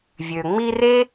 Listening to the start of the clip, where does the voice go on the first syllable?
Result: low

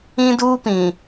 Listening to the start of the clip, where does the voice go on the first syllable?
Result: high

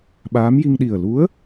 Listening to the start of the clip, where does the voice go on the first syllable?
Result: rising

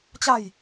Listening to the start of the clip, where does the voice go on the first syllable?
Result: falling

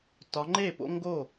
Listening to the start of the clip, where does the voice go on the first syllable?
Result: rising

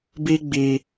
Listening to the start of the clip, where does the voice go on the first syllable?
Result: high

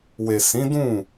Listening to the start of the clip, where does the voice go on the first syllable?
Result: low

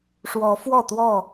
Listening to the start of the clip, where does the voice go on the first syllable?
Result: rising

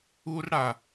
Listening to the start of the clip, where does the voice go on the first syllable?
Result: high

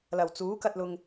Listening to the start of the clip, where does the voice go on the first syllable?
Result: low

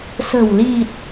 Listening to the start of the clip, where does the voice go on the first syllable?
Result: low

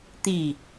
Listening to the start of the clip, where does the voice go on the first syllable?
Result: falling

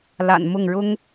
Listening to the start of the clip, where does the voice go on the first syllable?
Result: low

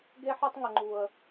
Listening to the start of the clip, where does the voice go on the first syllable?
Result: high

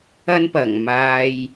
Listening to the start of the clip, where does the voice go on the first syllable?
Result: high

